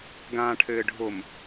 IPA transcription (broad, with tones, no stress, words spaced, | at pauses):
ɡãː˨ʈʰɘː˨ɖʱo˨m